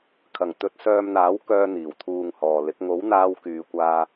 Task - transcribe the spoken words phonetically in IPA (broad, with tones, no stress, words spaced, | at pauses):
kʰɐ˨˩ŋ t̪ɵ˨˥t̚sœː˧mn̪aː˨˥w kœː˧n̪iː˨˩wt̪ʰuː˨ŋ hɔː˨lɪ˨˥k̚ ŋo˨˥wn̪aː˧w kyː˨kʷaː˧